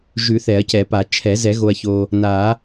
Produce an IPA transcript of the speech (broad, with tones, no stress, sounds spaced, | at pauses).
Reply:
ʒ ʉ˨˩˦ θ ɛ˨˩˦ ɐ̯ c ɛ˨˩˦ p a˨˩˦ t͡ʃʰ ɛ˨˩˦ z ɛ˨˩˦ ɣ o˨ ɐ̯ ç o˨ | n a˨˩˦